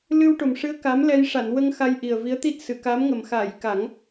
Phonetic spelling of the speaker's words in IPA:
l ɨ˧ w ʈ o˨˩ m ʂ ɨ˧˥ ə̯ k a˧˥ m l ɛ˧ j ʂ a˨˩˨ n w ə˧ ŋ x a˧ j ʔ i˨˩ ə̯ v i˧˥ ə̯ t̪ i˦˥ t̚ s ɨ˨˩˨ k a˧˥ m ŋ ə˨˩ m x a˨˩˨ j k a˨˩˦ ŋ

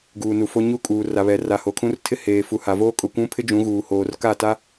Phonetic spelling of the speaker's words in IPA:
ɡ uː˨ n u˨ f o˦ ɲ u˦ kʼ uː˨ r a˨ β ɛ˨ r a˨ h o˨ kʰ ũ˦ r tʰ ɪ˦ h eː˨ f u˨ h a˨ v oː˦ kʼ ʊ˨ kʷ ũ˦ pʰ ɪ˦ d͡ʒ ũ˨˦ ɣ uː˨ h oː˨ r k a˦˨ t a˦

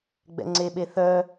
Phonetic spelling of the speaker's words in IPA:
ɡ͡b ɛ̰ ŋ͡ǀ e ɓ e θ œ

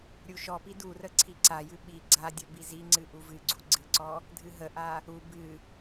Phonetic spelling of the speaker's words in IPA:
ɾʲ u ʃ ɔ p i d u r ə ǀʰ i ǀ a j ɨ ɓ i ɡ͡ǀ a dʲ ə b i z i ŋ͡ǀ ɨ ʔ u v ɨ ɡ͡ǀ u ɡ͡ǀ ɨ ǀ ɔ | dʱ ɨ ɦ ə ʔ a | u b ɨ

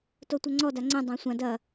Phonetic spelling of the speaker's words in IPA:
t o tʷ ɐ ŋ͡ǀ ɔ d a ŋ͡ǀ ɛ̃ dˤ ã sʷ ã d ɐ

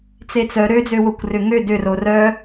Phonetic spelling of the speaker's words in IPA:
t͡s e t͡s œ ɾ ø d͡z ø w o kʷ r ʏ ŋ ø d ʏ r o r œ

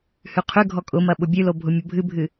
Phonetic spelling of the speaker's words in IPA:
h ʉ qʰ ʉ ɡʱ ɔ kʼ ʊ m ɐ ɓ ʊ bʲ ʉ l o bʱ ʊ mʲ ʊ bʱ ɨ bʱ ɨ

